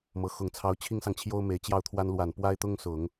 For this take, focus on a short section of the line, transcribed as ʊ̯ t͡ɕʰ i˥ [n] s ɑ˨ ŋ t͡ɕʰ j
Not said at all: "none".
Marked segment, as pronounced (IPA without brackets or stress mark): ŋ